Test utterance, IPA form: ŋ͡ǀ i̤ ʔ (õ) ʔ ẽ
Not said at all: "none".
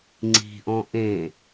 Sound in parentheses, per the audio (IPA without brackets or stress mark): ɔ̃